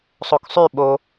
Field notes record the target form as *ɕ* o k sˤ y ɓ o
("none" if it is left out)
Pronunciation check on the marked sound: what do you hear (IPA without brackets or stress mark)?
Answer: sˤ